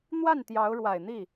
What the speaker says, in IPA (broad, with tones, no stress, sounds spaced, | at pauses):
n̪ w a˥˩ n t̪ j ɑ˧˥ ʊ̯ ɻ w a˨˩ ɪ̯ n̪ i˥˩